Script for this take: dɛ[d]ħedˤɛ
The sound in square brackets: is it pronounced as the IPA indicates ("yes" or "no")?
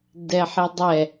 no